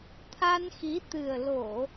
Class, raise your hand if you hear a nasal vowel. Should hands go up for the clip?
no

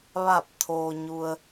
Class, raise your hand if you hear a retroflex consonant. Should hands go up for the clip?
no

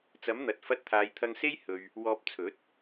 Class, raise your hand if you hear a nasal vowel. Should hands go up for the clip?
no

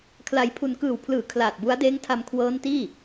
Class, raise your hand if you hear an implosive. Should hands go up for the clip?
no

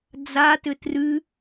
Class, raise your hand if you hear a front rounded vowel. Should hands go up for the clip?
yes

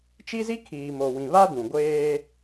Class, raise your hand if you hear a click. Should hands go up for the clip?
no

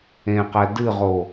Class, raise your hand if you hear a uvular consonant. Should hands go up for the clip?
yes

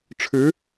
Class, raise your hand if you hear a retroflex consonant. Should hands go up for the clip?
yes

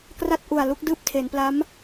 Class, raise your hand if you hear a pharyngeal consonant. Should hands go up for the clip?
no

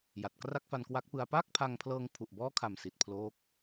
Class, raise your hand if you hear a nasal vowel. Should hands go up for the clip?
no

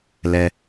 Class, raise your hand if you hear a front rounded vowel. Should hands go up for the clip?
no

